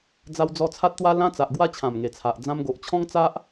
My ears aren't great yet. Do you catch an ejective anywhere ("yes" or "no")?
no